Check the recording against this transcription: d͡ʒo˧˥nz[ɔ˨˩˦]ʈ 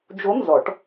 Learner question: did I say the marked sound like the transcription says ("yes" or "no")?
yes